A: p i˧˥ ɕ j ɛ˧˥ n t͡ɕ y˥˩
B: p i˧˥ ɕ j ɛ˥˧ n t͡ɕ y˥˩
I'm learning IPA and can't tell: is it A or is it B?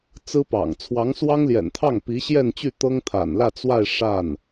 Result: B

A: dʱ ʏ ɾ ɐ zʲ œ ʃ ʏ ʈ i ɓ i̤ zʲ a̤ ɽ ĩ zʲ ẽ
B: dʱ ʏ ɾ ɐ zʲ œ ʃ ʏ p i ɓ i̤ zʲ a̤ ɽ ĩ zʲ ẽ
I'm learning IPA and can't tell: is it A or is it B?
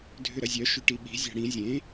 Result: A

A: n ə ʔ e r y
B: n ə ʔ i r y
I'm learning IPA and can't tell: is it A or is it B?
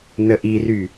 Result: B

